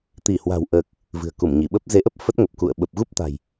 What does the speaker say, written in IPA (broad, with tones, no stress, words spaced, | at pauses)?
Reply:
t̪i˧˩hwa̤˨˩wʔəː˨˩k̚ | vɨ̤˨˩ə̯ku˧˩mɲi˧˩ɓə˦˥p̚ ze˨˦ʔə˦˥p̚ fə˦˥t̚ŋə˨˩p̚kṵ˧˨ə̯ ɓə˨˩p̚ɣu˦˥p̚t̪a̤˨˩j